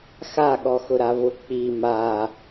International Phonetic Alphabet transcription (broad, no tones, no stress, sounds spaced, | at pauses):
x a ɠ ɔ x ʊ ɾ a v ʊ k͡p i m a